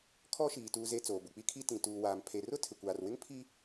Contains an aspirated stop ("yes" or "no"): yes